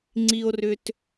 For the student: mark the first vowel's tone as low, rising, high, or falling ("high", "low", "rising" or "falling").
low